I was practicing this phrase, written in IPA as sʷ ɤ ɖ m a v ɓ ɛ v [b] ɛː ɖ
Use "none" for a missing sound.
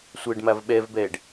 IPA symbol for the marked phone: b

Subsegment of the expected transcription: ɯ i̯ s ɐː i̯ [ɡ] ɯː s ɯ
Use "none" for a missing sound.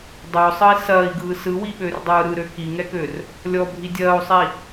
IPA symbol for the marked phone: ɡ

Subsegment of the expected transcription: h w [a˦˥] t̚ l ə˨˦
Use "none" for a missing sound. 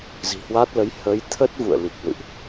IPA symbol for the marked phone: a˦˥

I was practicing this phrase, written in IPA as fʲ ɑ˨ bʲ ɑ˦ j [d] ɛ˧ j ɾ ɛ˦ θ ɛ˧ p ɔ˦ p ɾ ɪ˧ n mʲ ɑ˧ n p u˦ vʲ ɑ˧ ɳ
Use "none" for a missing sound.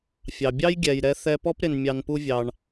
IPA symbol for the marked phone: ɡʲ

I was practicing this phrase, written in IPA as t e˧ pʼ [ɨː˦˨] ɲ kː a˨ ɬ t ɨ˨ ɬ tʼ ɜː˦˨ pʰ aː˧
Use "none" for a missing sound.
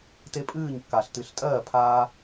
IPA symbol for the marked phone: ɨː˦˨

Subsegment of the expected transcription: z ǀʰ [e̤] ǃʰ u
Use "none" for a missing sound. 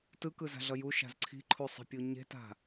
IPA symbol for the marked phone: i̤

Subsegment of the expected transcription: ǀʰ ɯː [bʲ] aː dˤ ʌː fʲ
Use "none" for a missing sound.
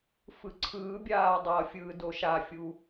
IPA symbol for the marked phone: bʲ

